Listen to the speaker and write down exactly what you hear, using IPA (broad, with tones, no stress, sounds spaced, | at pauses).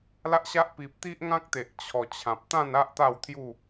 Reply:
l a˦ ʔ ɕ a˦ ʔ p i˨ p̚ t̪ i˦ ʔ ŋ ã˦ k̚ t̪ e˨ ʔ t͡ɕʰ ɔ˨˩ t͡ɕʰ ã˨ p̚ t̪ ã˥˧ n a˦ ʔ t̪ a˥˧ w t̪ʰ j u˥˧